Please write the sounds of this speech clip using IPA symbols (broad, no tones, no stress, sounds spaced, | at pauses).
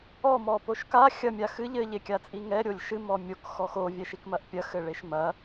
ɔ m ɔ p o ʃ k a xʲ ɐ mʲ a x ɨ ʎ ɘ ʎ e kʲ a t͡sʼ i ŋ ɛ ɾʲ o lʲ ʃ ɨ m ɔ mʲ o k x ɔ x o vʲ ɛ ʃ i k m ɐ ʔ pʲ ɐ x ɘ ɭ e ʃ m ɐ